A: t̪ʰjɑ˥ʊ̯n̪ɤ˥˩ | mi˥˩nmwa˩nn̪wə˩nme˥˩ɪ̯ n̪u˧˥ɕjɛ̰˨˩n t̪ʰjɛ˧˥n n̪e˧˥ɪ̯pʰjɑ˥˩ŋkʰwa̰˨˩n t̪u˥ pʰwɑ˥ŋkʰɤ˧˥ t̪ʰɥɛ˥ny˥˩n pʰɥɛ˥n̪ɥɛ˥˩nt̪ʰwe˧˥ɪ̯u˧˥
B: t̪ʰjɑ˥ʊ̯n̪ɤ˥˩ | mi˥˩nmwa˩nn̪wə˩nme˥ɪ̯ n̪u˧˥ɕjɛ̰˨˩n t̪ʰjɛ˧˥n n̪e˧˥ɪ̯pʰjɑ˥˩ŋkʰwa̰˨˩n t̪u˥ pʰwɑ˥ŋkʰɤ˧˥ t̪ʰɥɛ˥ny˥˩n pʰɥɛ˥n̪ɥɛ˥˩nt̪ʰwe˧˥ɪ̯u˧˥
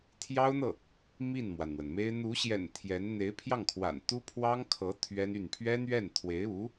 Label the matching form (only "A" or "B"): B